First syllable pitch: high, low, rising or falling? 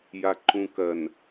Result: low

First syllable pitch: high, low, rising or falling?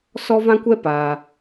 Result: high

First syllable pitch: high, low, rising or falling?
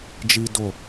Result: high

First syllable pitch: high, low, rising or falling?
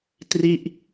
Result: falling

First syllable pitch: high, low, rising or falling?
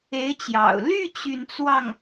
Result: rising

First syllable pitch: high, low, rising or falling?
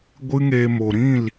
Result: high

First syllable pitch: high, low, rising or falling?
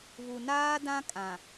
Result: low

